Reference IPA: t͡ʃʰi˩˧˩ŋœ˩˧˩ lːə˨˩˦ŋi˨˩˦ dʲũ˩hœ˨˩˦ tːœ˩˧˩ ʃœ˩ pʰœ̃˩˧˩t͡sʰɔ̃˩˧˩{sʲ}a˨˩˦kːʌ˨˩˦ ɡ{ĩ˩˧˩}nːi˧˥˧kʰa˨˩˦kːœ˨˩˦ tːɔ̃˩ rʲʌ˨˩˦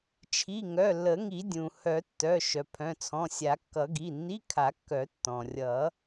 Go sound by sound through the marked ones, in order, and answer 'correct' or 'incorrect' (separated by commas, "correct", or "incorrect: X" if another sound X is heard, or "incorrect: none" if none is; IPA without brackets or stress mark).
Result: correct, incorrect: i˩˧˩